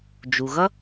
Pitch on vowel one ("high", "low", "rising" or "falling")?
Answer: low